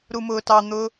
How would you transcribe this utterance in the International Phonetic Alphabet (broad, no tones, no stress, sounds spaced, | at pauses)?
ɾ u m ʊː t ɑ n̪ ʊː